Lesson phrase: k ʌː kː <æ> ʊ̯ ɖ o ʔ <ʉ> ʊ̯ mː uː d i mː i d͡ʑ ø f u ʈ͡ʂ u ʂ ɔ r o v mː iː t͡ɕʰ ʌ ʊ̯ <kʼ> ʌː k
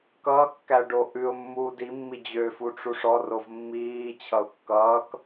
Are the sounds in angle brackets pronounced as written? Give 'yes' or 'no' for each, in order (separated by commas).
yes, yes, no